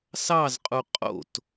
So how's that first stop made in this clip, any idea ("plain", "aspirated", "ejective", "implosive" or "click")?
ejective